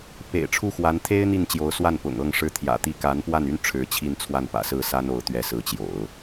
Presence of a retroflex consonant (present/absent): present